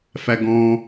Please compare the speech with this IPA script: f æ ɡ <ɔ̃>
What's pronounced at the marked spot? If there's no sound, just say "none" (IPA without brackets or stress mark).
ɔ̃